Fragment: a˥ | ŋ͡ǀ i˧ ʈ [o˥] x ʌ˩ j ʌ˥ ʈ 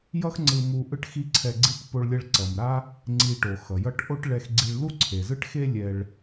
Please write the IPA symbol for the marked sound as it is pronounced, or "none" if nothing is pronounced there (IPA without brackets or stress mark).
o˩